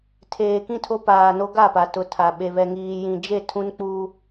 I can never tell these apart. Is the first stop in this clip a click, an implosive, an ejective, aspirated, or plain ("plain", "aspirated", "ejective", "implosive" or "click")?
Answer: aspirated